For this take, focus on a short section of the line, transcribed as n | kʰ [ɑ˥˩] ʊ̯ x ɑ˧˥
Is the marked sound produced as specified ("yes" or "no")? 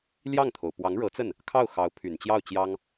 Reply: yes